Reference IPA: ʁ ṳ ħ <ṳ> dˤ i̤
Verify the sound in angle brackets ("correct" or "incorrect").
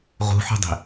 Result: correct